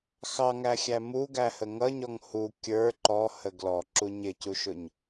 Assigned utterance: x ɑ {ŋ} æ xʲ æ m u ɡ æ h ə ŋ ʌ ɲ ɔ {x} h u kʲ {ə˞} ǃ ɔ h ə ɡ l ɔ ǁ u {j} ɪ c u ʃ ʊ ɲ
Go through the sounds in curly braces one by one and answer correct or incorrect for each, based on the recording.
correct, incorrect: ŋ, correct, incorrect: ɲ

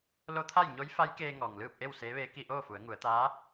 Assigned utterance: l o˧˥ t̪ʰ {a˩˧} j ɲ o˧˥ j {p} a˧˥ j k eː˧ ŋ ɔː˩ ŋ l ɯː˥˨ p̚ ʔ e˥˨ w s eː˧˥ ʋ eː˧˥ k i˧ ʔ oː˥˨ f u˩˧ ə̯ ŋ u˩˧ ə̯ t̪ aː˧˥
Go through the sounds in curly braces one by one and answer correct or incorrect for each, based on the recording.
incorrect: a˥˨, incorrect: f

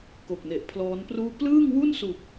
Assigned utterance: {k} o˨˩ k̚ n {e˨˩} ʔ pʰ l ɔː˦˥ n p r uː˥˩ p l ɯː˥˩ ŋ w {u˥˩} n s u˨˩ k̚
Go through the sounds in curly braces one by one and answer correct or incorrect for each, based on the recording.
correct, correct, correct

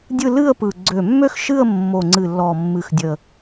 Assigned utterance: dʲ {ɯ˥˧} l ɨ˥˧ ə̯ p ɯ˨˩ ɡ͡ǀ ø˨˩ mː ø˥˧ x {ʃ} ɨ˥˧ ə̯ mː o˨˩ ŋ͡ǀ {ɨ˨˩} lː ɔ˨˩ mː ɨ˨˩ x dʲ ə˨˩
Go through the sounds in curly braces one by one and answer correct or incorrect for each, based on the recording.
correct, correct, correct

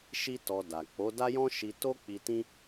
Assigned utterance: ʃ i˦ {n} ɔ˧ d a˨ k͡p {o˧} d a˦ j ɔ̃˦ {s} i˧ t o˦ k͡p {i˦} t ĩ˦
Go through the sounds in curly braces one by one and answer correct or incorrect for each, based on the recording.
incorrect: t, incorrect: o˨˦, incorrect: ʃ, incorrect: i˧

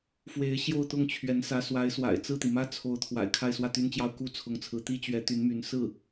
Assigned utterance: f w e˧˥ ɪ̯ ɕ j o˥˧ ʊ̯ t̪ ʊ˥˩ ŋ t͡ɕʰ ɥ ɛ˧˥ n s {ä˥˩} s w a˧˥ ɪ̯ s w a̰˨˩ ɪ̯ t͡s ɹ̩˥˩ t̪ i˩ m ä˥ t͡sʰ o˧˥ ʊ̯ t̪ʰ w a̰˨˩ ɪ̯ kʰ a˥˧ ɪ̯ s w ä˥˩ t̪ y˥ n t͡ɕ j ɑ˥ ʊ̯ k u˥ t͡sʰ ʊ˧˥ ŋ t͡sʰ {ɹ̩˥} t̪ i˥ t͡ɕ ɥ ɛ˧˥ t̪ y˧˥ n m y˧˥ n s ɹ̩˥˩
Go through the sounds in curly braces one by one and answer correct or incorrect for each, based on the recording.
incorrect: ä˧˥, incorrect: ɹ̩˧˥

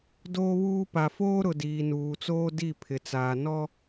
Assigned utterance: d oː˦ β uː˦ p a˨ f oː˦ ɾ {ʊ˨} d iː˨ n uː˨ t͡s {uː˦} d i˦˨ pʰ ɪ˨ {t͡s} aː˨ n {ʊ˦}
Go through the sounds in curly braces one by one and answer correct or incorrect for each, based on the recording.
correct, incorrect: oː˦, correct, incorrect: ɔ˦

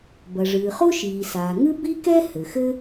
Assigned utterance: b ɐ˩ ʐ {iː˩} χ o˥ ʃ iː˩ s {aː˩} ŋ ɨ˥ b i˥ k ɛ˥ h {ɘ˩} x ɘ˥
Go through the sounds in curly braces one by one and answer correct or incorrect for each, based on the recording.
incorrect: ɨː˩, correct, correct

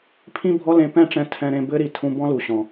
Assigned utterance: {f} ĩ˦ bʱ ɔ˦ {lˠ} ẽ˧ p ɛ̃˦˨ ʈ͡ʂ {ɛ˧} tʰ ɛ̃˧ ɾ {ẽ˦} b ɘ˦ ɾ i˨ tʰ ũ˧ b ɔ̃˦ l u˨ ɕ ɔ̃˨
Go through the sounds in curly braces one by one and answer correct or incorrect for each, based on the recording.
incorrect: pʰ, incorrect: l, incorrect: ɛ̃˧, incorrect: ẽ˧

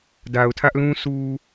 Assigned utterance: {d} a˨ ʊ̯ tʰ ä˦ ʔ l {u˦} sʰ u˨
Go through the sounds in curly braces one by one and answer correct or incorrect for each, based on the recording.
correct, incorrect: ũ˦

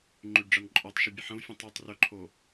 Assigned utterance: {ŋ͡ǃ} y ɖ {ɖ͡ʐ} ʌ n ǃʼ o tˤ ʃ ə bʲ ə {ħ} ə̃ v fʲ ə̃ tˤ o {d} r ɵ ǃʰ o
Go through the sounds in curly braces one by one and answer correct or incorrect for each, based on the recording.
correct, correct, correct, incorrect: tˤ

